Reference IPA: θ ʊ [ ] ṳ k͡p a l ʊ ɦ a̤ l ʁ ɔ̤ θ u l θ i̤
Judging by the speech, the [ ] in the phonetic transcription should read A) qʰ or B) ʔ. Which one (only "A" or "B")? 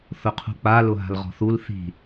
A